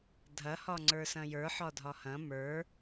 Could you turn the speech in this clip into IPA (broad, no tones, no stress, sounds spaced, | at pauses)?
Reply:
dʱ ɐ h ɒ ŋ͡ǀ ə˞ s ɐ̃ j ə˞ ħ ɒ dʱ ɒ h ɐ̃ m ə˞